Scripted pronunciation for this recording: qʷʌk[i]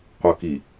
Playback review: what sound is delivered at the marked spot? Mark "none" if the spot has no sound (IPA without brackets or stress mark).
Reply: i